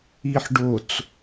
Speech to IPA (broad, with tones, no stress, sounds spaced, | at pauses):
i˨ ħ ɖ o˨ t͡s